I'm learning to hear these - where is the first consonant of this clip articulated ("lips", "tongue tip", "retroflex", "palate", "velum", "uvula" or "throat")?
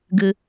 velum